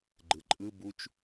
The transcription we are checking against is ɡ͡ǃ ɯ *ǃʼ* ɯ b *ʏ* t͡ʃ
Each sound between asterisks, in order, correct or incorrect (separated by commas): correct, incorrect